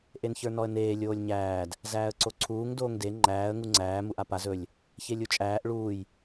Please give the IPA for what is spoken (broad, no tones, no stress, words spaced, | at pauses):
ʔençə˞nɔə̯neː lʲoːlʲɲæːd | zæːə̯ǀoǀʰuːŋ doːŋde ŋ͡ǃæːə̯ ŋuŋ͡ǀæː muʔapaz ɵlʲ | çelʲut͡ʃʼæːʔ ɭuːj